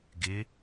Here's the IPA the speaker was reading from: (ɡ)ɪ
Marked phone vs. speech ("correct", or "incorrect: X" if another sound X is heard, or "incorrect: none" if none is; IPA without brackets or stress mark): correct